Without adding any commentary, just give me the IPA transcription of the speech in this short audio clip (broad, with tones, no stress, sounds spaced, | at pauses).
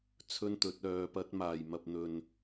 t͡sʰ ɵ˥ n t̪ ɵ˨˥ t̚ œː˧ p ɐ˥ t̚ m aː˨ j m ɐ˧ p̚ n̪ ɵ˨ n